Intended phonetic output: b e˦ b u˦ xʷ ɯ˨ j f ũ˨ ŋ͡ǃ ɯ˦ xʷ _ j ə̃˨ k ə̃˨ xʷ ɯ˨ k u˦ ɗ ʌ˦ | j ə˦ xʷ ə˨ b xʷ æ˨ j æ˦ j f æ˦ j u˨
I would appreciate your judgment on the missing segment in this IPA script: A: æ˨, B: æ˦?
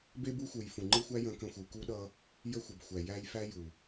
B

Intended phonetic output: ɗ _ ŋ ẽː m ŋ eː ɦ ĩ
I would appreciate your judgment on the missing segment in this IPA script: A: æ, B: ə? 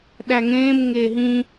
A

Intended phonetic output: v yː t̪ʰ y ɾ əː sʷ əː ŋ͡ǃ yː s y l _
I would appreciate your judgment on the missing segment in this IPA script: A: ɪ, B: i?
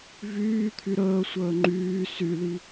B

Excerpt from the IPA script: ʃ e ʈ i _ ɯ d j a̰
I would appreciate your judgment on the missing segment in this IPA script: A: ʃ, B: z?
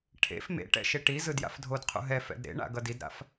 B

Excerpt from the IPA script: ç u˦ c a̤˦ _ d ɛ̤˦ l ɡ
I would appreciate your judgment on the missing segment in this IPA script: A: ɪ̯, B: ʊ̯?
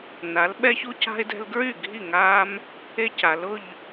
A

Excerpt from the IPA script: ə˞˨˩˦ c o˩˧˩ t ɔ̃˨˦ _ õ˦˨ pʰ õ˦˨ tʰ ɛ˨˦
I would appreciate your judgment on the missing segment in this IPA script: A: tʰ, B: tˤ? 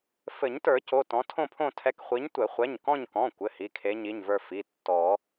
A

